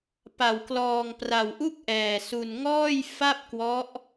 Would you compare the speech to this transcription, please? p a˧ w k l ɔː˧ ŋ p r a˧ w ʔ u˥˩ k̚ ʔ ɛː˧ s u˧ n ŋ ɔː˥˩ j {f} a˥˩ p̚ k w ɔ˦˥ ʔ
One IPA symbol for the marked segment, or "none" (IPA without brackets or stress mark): f